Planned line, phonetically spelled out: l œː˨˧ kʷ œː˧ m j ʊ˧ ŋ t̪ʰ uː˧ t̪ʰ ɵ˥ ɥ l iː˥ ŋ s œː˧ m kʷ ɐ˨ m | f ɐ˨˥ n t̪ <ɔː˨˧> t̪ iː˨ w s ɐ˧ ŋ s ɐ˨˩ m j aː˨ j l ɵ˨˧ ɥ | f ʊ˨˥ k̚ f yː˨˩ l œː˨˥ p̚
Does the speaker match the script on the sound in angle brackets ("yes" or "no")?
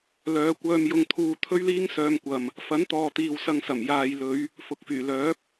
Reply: no